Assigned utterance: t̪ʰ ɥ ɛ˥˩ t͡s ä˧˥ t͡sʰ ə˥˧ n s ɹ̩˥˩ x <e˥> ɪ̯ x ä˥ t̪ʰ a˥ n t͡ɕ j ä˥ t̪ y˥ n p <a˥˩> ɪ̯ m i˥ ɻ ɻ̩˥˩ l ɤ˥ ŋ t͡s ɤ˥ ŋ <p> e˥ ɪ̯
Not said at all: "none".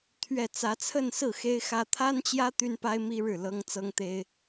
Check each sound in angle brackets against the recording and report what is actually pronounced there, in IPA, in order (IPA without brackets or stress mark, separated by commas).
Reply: e˥, a˥, t̪